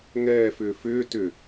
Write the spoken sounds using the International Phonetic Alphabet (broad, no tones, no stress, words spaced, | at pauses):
ŋɛːfʏː fʏː tʏ